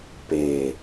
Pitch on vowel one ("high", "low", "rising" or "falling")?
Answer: low